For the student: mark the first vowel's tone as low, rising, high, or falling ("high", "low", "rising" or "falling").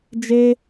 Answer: high